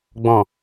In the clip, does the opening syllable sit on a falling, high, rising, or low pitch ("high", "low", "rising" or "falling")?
low